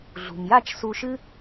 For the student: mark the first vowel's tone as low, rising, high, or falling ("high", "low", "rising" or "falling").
low